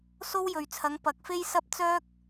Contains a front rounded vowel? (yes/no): yes